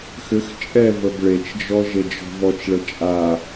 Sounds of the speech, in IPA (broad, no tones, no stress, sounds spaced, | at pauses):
x ʏ x t͡ʃʼ ɛ v ə b ɭ e t͡ʃ d͡ʒ ɔ ʒ e d͡ʒ ɔ̤ v ɔ t͡ʃ ɭ ə t͡ʃʼ a